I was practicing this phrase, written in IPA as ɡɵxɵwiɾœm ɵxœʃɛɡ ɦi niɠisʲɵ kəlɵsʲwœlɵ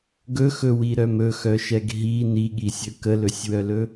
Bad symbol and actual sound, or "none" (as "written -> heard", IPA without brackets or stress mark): none